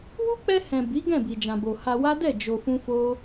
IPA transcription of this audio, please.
w u˦ k͡p ɛ˧ h ɛ̃˨ b i˨˦ ɡ ɛ̃˦˨ b i˨ d͡ʒ ã˨ b o˨ h a˧ w a˦ d ɛ˦˨ d͡ʒ o˧ f ũ˦ f o˦

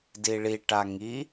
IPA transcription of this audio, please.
d i ɭ i ʈ a ŋ i

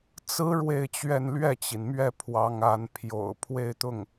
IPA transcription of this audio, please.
t͡s ɹ̩˧˥ ɻ w e˥˧ ɪ̯ t͡ɕ ɥ ɛ˥˧ n l ɥ ɛ˥˩ t͡ɕ i˩ n m ɥ ɛ˥˩ pʰ w ɑ˧˥ ŋ a˧˥ n pʰ j o̰˨˩ ʊ̯ pʰ w e˥˧ ɪ̯ t̪ ʊ˥˩ ŋ

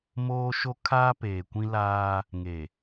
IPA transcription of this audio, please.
m oː˦ ʃ o˦ kʰ aː˦ p eː˨ kʷ ĩ˦ l aː˦ | ŋ e˨

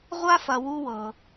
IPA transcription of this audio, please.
ʁʷ a˦ f ɐ˨ w u˦ w ɤ˩

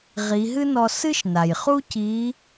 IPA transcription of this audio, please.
ʁ i˩˧ ɦ ɨ˥ n ɔ˧ s ɨ˥ ʃ n a˩ j χ u˥ c i˧˥

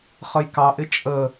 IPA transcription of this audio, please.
χ ə j k ɑ ʔ ɪ t͡ʃʼ ə

